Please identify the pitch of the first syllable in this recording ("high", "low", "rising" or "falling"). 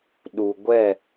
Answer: low